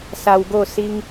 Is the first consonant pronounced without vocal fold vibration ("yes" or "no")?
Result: yes